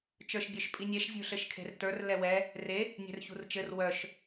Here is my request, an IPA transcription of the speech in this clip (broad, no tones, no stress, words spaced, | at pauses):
t͡ʃə˞ʃbʲœʃpʼinʲɛʃ zʲṳɬɘʃkʰe̤rtə˞r lɛwɛ | re | nʲɛ̤rçṳrt͡ʃɘr wœʃ